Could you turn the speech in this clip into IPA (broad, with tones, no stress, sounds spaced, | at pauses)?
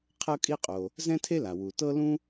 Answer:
qʰ ɤ˥ kʼ i˥ qʼ o˩ | z ɛ̃˥ tʰ e˥ l a˩ w u˩ t ɤ˥ l ũ˥